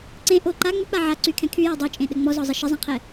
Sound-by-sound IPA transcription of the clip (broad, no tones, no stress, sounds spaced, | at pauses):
ǀ ẽ ʔ o ǃ a ŋ͡m ʏ k͡p a ʕ a ǀ y kʰ ɛ̃ kʰ y j e dˤ ɵ t͡ʃʼ ẽ ɗ ɘ ŋ͡m ɔ z ɔ zˤ ə ʃ ə zˤ ɛ̃ qʰ ɛ